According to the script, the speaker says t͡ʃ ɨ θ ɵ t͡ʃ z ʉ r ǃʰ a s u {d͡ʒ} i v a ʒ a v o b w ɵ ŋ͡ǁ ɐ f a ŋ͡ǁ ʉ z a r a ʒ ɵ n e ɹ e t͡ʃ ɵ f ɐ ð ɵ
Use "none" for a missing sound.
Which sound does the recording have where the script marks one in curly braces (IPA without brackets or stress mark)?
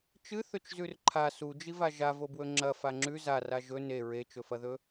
d͡ʒ